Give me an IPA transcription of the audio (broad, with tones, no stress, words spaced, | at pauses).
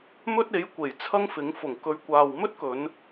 mɵ˥t̚e˨˥j kʷe˨˩jt͡sʰɐ˥ŋfɪ˨˥ŋ fʊ˨˩ŋ kɵ˨˧ɥkʷaː˨wmɵ˥t̚kɵ˨˧n